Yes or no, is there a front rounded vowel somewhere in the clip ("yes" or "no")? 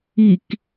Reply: no